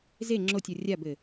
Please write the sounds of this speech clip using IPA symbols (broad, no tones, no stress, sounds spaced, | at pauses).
z e ŋ͡ǁ o tʲ ɔ rʲ a b ɘ